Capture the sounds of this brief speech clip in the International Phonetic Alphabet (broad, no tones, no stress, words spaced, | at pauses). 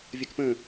vʲəkpə̃